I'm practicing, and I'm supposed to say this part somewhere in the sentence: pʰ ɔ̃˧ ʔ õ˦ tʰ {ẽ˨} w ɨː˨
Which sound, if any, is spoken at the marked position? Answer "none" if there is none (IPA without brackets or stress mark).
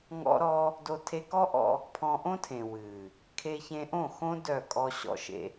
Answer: ẽ˨